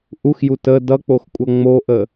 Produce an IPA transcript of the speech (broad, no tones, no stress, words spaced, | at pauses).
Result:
ʔuxju tə dʌk͡poxkʷʼʌ ŋ͡moʔə